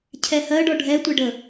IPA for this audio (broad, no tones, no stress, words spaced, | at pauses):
cʰɛhɜɖɔ ɖʱɛtʷɛɖə